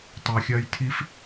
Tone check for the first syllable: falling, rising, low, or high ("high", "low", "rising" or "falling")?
low